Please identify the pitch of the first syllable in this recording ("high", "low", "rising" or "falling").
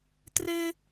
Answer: high